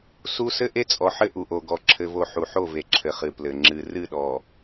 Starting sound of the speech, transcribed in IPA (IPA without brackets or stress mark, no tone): s